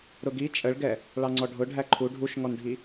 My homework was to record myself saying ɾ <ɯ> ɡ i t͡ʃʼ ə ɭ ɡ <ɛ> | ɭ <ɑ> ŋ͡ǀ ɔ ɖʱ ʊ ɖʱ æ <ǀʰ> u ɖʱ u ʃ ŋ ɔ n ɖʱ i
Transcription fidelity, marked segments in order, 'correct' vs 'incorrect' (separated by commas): incorrect, correct, correct, incorrect